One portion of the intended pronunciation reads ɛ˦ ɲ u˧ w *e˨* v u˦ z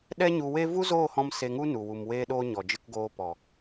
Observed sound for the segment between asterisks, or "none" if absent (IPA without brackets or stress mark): e˦